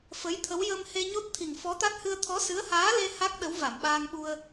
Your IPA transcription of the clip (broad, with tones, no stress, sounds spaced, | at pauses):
f ə˧˥ j t̪ʰ ə˧˥ w j ə˧ m h e˧ ɲ o˦˥ t̚ t̪ʰ i˨˩ ŋ f ɔ˧˥ t̪ a˦˥ t̚ h ɨ˧ ə̯ t̪ʰ ɔ˧˥ s ɨ˧˥ ə̯ h aː˧˥ l e˧ h a˦˥ k̚ ɗ ə˧˥ w v a˨˩˨ m ɓ aː˧ ŋ ɓ u˧ ə̯